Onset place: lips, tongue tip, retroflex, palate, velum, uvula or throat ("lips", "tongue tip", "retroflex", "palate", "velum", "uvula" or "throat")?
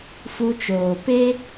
lips